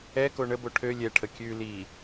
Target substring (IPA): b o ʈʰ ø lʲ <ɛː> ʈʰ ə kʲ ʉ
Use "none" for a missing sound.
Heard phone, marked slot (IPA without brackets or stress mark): ɛ